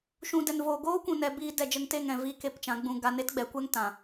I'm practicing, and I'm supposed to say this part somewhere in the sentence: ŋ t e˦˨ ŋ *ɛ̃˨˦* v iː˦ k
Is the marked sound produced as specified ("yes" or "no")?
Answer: no